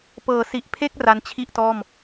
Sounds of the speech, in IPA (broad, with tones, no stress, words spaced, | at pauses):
pɤː˨˩si˨˩ʔpʰe˥˩k̚ ra˦˥n t͡ɕʰi˥˩ʔtɔː˥˩m